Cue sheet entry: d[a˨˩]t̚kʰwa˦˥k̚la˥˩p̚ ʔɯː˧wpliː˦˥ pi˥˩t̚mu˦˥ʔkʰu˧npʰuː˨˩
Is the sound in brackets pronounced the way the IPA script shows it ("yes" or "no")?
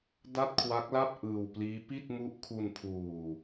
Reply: no